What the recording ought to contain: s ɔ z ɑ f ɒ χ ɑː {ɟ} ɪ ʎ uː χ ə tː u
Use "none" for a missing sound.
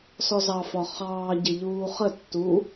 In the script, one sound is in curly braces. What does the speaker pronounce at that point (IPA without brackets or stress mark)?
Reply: ɟ